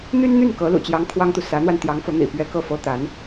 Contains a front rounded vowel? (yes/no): yes